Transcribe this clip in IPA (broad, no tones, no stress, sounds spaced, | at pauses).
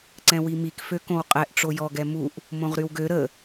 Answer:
ǀ ɛ̃ w i m i k f ø k õ w qʼ ɛ ʔ ʈ͡ʂ o j ɔ ɡ ɛ m u ʔ | m õ ʁ ɾ y w ɡ ø ɾ ə